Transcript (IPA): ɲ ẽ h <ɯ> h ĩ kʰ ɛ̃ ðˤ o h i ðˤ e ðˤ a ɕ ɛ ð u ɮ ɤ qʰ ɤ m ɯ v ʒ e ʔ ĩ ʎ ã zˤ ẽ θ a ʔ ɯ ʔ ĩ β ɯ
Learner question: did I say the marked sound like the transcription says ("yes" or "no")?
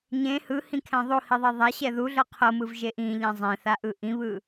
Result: yes